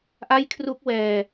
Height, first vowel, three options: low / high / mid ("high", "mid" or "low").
low